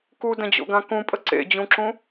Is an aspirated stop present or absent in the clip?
absent